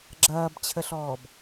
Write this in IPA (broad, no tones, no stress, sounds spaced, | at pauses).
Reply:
ɡ͡ǁ ɐː b t͡ɕʰ ə ɬ ɔː b